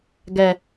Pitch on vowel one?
low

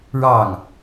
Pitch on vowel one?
falling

